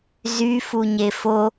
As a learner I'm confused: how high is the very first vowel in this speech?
high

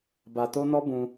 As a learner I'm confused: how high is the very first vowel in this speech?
low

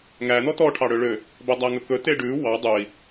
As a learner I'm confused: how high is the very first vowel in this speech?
low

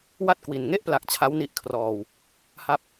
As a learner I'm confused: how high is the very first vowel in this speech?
low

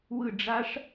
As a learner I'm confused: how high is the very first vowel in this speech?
high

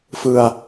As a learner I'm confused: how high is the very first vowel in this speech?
high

